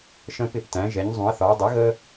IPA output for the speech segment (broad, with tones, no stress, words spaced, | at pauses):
ʃə̃˦ pɪ˥˩ptæ̃˩˥ ʒɛ˩˥ɲzˤũ˩˥ɐ̯θɒː˩˥ dˤə˩˥ɣə˦